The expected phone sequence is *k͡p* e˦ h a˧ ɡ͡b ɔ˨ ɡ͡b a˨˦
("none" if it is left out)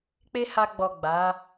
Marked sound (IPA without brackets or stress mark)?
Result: k͡p